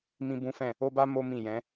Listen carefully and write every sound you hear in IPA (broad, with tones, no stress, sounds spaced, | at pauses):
m ĩ˦ b ũ˦ f ɛ̃˦˨ | o˦ b a˦ m o˦ m ĩ˦˨ j ɛ̃˨˦